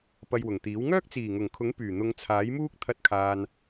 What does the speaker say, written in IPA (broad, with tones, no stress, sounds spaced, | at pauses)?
p ɐ˧ j w ʊ˨˩ ŋ t̪ iː˨˥ w ŋ œː˥ k̚ t͡s iː˨˩ ŋ ʊ˨˩ ŋ kʰ ʊ˨˥ ŋ p yː˨˩ n̪ ʊ˨˧ ŋ t͡sʰ aː˨˥ j m uː˥ k̚ t̪ʰ ɐ˧ t̚ kʰ aː˨ n